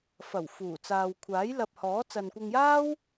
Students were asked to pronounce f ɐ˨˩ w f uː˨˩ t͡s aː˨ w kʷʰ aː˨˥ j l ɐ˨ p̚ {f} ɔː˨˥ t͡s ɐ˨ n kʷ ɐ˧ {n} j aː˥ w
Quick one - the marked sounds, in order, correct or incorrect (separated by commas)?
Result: incorrect, incorrect